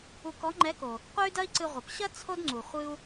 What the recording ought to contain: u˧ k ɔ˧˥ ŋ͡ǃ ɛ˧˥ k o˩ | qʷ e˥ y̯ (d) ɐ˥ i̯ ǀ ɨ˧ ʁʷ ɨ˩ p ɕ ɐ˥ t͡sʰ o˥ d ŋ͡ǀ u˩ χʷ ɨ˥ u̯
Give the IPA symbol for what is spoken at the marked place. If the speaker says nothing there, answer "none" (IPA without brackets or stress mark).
d